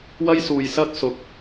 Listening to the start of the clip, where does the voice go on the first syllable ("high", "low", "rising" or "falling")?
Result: high